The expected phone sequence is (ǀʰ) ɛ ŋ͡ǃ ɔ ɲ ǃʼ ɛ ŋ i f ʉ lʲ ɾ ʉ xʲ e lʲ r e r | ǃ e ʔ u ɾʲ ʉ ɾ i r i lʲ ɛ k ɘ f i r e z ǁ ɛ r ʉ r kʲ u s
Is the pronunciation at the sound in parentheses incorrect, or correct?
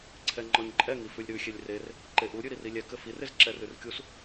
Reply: correct